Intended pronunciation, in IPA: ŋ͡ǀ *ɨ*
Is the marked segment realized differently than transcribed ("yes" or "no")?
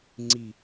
yes